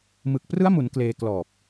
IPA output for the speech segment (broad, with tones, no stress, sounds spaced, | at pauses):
m ɯ˨˩ k̚ p r ɯ˦˥ a̯ m u˩˦ n k l eː˧ k l ɔː˨˩ p̚